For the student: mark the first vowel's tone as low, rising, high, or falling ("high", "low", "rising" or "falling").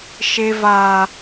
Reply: high